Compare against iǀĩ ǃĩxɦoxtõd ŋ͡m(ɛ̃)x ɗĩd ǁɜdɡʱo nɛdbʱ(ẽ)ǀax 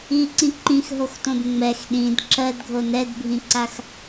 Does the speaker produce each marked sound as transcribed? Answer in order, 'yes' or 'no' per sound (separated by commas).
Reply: no, no